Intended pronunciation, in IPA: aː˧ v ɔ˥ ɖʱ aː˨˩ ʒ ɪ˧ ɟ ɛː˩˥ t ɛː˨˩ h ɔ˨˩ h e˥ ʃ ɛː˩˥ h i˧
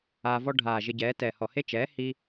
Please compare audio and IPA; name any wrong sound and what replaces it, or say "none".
ʃ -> t͡ʃ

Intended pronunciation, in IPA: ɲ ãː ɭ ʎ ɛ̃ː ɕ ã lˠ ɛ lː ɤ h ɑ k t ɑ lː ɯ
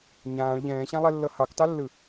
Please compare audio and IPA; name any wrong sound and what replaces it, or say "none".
none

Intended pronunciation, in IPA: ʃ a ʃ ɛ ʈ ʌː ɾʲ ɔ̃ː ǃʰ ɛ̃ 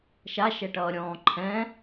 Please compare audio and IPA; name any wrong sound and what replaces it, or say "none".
none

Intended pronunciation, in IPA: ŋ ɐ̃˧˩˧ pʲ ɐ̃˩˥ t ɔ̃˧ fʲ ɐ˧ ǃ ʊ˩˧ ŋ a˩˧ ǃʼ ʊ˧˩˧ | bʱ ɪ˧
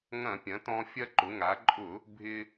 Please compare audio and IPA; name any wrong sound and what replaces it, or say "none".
none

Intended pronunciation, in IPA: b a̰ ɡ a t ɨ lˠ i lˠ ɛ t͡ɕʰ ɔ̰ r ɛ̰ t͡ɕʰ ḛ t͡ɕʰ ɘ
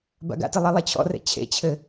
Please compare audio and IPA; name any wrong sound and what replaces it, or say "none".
a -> a̰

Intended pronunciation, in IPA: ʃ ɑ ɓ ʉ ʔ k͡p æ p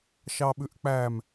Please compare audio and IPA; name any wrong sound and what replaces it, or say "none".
p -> m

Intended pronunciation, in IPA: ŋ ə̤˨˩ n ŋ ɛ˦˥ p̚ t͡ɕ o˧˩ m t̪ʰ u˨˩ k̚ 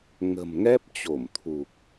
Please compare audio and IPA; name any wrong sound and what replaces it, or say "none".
n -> m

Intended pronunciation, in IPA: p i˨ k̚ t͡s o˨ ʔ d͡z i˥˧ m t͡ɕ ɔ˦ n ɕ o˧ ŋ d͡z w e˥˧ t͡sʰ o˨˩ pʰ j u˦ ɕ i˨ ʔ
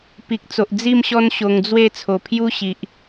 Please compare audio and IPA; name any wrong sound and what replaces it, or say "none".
t͡ɕ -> ɕ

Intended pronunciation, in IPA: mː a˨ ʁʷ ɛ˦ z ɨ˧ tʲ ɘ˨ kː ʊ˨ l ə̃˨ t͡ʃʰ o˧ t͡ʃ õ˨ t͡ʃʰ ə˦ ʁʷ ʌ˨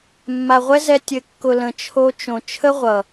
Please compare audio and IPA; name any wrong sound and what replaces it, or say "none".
ɨ˧ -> ɛ˧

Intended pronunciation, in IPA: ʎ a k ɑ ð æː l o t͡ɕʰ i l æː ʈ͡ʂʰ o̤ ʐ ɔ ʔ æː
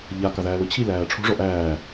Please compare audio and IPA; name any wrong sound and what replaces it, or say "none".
none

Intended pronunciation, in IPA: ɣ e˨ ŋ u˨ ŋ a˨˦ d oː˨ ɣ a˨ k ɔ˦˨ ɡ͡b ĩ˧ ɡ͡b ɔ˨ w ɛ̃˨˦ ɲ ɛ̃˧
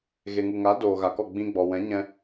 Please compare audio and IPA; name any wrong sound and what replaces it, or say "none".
none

